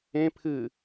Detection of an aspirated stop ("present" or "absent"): present